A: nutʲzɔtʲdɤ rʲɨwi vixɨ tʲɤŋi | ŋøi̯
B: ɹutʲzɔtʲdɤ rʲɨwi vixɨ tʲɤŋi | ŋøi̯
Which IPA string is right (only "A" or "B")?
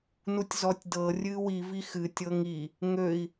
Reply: A